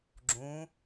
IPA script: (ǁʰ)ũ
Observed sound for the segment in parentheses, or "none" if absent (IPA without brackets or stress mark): ɡ͡ǁ